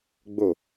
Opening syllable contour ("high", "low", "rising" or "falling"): falling